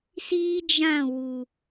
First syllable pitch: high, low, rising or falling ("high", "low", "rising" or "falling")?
high